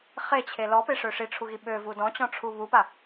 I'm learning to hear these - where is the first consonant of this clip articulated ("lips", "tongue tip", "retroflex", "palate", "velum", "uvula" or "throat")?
uvula